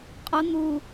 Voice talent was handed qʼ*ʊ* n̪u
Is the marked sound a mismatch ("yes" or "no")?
no